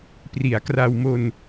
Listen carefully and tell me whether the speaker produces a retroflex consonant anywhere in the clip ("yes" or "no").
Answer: no